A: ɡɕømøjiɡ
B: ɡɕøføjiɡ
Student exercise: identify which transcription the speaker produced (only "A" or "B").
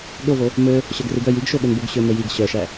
A